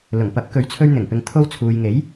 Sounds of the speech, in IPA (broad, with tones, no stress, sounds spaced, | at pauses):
l ʊ˨˩ ŋ p ɐ˨˥ p̚ k ɵ˨˥ ɥ t͡sʰ ɵ˧ ɥ n̪ ɪ˨˩ ŋ p ɪ˨ ŋ t̪ʰ o˧ w t͡sʰ uː˨ j ŋ e˨˥ j